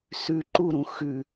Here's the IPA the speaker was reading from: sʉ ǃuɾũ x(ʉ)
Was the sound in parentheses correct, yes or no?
yes